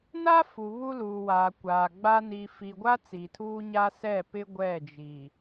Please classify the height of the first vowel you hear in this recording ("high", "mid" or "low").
low